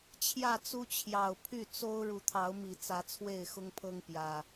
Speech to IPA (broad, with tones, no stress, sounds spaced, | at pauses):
t͡ɕʰ j ä˥˨ t͡s u˦ t͡ɕʰ j ɑ˨˩ ʊ̯ pʰ y˥˨ t͡s o˦ ʊ̯ ɻ u˨˦ t̪ʰ ɑ˨˦ ʊ̯ m i˨˩ t͡s ä˨˦ t͡sʰ w e˥˨ ɪ̯ x ʊ˦ ŋ pʰ ɤ˦ ŋ p j ä˨˩